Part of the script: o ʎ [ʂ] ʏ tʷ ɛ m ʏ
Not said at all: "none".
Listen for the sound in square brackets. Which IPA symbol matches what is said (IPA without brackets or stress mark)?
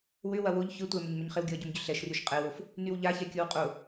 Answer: ç